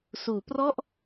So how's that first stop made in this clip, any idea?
plain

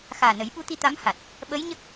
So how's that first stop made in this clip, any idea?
implosive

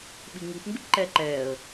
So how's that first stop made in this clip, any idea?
implosive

